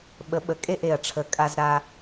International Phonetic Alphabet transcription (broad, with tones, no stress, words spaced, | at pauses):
ɓə˩˥ ɓə˩˥kʼe˥˨ʔe˨˩ɐ̯ʈ͡ʂʰə˨˩ kʼa˧z ɾa˧